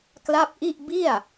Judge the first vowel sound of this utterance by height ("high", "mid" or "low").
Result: low